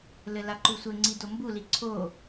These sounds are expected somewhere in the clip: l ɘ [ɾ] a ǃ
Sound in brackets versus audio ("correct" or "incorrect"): incorrect